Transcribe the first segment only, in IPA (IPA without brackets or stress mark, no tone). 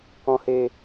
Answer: k